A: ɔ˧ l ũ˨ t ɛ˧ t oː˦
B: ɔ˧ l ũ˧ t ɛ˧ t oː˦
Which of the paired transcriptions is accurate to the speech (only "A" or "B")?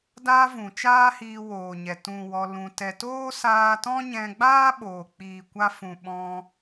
B